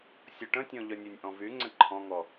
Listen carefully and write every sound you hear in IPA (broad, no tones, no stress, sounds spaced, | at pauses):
sʲ o ʈ ə̃ tʲ ɔ̃ ʎ œ nʲ ø nʲ ʔ ɔ̃ v y ŋ͡ǀ ə̃ ǃʰ ɔ̃ ŋ ɔ